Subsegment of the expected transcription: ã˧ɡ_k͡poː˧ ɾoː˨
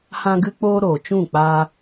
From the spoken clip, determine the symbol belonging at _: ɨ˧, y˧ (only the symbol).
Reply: ɨ˧